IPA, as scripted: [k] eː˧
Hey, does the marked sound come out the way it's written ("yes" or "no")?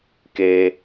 yes